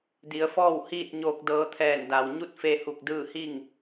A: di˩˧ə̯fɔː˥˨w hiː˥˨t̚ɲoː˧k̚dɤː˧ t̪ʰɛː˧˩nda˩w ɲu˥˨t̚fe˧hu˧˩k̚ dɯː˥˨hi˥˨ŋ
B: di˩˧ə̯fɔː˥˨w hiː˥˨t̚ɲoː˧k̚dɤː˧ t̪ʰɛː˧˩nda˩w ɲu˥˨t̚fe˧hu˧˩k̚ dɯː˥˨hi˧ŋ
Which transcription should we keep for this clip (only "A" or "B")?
A